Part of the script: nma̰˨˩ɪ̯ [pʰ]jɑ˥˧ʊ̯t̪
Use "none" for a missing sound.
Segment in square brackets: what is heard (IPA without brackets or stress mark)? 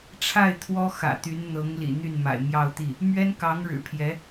m